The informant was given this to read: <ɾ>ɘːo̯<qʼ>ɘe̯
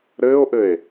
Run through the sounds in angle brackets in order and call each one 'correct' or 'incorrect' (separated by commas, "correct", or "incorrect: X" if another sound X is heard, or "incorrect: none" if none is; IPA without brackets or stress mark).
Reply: correct, incorrect: ʔ